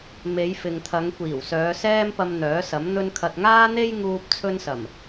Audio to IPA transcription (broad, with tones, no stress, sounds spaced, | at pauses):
m e˨˧ j f ɪ˨ ŋ t̪ʰ ɐ˨˧ ŋ kʷ iː˨˩ w s œː˨˧ s ɛː˥ m p ɐ˧ m n̪ œː˨˥ s ɐ˨˥ m n̪ ɵ˧ n kʰ ɐ˨ t̚ ŋ aː˥ n̪ e˥ j ŋ uː˧ p̚ t͡sʰ ɵ˥ n s ɐ˨˩ m